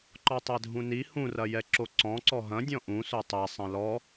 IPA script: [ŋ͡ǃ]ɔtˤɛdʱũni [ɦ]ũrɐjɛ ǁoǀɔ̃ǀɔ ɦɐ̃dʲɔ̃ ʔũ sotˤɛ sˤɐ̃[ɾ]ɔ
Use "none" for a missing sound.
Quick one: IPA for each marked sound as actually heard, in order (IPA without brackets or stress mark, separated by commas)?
ǃ, h, l